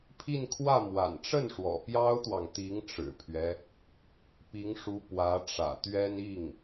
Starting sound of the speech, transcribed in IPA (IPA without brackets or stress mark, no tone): pʰ